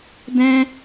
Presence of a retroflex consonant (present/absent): absent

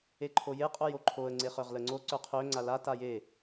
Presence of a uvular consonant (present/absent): present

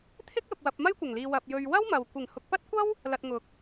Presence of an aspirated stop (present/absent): present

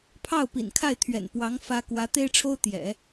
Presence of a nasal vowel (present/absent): absent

